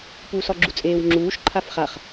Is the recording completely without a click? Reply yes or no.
no